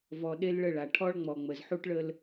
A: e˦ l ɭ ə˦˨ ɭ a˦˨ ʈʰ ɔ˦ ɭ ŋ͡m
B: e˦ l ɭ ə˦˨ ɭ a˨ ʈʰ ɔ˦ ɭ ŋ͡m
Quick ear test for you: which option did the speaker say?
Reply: B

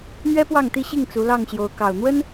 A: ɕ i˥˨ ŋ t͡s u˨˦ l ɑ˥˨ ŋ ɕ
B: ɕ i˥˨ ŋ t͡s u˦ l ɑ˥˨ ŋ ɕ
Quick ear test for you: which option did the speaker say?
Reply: A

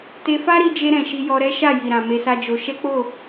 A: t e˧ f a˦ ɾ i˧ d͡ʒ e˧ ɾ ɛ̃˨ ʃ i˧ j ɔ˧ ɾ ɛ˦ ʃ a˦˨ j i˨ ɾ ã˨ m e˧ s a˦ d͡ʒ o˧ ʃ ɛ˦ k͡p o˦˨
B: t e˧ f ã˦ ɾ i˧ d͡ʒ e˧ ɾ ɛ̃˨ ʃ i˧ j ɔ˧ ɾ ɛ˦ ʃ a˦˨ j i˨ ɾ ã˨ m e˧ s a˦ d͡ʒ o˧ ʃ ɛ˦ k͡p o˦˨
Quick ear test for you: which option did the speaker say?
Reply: A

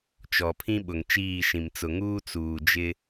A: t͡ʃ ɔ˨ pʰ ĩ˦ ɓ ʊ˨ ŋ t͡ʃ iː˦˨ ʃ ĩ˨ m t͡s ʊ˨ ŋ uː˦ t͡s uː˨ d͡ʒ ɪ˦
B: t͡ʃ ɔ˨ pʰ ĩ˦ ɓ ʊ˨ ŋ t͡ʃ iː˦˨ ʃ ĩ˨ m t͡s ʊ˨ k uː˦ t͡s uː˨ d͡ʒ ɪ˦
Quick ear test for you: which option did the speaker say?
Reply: A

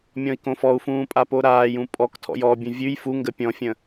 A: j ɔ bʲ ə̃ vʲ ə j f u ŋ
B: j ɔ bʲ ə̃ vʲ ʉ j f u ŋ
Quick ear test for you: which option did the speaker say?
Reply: B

